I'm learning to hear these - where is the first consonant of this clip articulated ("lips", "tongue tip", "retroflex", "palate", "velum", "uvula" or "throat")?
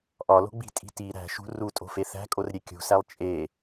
throat